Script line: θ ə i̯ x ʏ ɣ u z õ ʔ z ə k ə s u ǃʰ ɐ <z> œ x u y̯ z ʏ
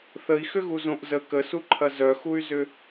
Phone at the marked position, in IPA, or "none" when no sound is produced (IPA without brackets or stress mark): z